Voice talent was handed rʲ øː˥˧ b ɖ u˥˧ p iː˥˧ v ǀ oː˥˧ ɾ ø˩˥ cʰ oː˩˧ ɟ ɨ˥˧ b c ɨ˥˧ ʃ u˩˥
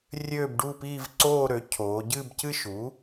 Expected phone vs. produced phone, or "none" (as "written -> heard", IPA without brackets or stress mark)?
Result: none